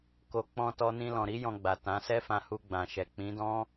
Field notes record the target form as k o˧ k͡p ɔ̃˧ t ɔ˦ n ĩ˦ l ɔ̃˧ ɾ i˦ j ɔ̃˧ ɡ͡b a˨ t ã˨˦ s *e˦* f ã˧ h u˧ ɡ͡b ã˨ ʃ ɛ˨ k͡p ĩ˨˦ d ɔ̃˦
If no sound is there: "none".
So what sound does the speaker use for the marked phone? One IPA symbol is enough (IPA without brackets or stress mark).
ɛ˦